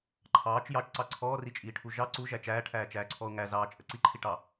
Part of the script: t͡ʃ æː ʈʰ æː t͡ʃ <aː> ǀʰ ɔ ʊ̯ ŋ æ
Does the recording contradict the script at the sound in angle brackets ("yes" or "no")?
yes